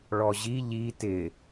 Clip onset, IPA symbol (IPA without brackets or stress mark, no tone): ɭ